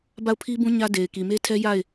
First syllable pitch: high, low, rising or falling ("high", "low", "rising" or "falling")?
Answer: falling